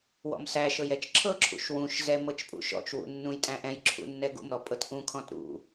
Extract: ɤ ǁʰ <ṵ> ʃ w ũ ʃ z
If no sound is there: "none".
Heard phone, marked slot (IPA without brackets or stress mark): ṵ